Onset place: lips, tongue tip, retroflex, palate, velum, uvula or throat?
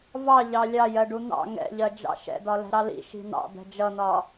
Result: lips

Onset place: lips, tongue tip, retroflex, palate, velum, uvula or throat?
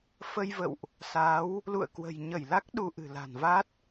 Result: lips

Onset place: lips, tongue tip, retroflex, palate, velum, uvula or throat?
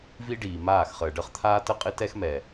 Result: lips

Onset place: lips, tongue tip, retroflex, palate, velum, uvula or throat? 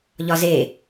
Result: palate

